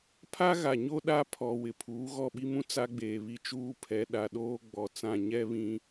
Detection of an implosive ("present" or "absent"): present